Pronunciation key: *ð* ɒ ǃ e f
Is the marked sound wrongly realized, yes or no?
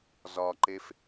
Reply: yes